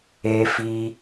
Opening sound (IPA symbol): eː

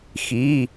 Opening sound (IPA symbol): x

